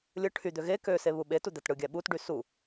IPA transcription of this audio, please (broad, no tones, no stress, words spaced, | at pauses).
lʲɯ ʈʰyd̪ø ɣe kø seβuɓetu d̪ætɽɯɡʲæ ɓutɖy su